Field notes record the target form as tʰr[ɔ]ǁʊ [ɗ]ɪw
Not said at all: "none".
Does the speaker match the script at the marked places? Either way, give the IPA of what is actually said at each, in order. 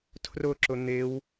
ʊ, n̪

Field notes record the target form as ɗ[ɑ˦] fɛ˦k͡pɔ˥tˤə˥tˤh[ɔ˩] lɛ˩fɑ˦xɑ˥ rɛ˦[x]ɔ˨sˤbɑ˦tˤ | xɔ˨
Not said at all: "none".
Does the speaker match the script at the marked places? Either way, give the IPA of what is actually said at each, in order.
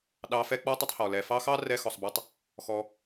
ɑ˨, ɔ˩, x

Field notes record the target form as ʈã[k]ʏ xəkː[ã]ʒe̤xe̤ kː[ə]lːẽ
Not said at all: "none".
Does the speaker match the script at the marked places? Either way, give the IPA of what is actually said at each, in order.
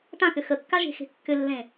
k, a, ʏ

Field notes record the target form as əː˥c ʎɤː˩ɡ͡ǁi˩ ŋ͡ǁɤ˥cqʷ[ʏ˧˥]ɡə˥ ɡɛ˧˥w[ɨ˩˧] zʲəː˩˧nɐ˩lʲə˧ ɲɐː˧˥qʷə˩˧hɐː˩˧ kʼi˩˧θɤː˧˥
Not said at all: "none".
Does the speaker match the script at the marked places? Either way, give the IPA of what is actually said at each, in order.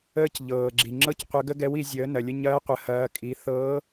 ə˧˥, i˩˧

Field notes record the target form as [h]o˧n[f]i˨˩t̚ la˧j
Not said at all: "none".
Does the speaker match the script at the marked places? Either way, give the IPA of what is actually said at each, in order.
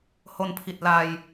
h, pʰ

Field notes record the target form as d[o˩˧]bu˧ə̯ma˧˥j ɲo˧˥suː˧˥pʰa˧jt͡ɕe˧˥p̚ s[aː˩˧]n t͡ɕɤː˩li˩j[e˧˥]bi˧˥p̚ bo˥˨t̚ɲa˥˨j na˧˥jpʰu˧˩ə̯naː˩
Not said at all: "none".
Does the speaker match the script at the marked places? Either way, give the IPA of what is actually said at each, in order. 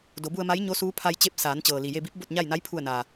o˩˧, aː˩˧, e˧

